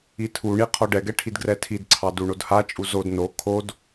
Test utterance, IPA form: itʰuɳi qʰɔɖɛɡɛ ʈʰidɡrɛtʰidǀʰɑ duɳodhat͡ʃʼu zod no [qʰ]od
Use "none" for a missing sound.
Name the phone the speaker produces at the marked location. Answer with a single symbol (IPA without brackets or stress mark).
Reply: kʰ